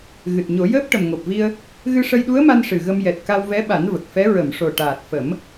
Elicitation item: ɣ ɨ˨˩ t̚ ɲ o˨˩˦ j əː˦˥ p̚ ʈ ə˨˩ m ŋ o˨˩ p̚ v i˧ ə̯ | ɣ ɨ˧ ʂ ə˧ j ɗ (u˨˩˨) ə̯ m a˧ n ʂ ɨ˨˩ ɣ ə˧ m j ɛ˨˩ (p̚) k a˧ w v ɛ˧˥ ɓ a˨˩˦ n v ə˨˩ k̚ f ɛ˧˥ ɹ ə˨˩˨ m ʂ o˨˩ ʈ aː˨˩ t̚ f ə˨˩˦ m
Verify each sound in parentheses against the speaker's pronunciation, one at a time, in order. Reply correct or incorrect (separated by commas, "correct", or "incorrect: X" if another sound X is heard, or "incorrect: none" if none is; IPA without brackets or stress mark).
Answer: incorrect: u˧˥, incorrect: t̚